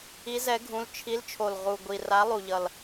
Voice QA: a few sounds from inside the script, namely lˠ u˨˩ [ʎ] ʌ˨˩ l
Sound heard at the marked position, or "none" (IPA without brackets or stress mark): ʎ